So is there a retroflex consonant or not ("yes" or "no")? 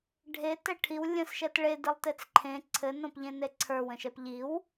yes